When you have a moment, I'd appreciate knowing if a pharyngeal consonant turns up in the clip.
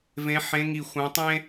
yes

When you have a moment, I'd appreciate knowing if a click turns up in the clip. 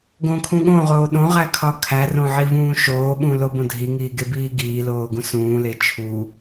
no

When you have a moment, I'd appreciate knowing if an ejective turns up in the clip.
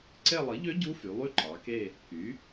no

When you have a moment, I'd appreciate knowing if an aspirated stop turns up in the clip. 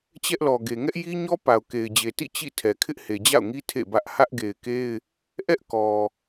yes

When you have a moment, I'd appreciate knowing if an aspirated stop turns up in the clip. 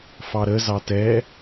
no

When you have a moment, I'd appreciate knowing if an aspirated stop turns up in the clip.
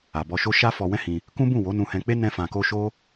no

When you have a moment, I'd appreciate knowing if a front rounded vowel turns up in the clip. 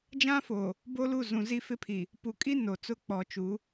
no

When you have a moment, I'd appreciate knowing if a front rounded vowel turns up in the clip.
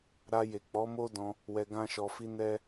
no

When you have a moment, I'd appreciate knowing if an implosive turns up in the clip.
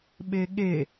yes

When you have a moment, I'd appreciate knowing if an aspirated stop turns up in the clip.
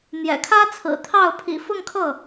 yes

